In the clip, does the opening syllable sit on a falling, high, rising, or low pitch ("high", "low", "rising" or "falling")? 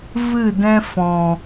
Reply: falling